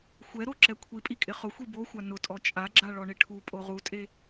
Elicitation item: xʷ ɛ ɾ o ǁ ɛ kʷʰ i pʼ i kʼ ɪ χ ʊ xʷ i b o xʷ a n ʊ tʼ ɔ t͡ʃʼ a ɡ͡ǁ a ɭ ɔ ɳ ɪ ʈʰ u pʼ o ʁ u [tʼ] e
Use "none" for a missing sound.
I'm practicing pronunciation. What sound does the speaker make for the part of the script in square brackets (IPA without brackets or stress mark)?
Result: tʼ